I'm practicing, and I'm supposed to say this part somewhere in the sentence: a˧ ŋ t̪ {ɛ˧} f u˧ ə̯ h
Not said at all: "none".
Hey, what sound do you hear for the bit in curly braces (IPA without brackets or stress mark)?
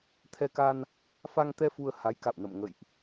ɛ˧